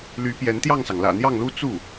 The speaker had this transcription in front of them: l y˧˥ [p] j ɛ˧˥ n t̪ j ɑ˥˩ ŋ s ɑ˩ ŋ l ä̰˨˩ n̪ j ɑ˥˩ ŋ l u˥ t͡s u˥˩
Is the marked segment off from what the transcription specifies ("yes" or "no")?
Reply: no